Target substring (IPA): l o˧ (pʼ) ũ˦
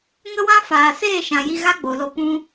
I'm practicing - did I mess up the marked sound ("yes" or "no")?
yes